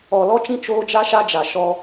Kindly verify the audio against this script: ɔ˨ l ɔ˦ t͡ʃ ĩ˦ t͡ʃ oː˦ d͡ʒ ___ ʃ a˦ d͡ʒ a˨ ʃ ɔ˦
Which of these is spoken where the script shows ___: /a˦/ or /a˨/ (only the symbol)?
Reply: a˦